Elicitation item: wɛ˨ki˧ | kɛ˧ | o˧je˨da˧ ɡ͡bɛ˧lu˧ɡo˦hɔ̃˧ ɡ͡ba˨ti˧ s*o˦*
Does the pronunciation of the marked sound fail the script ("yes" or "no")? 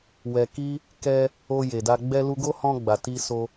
yes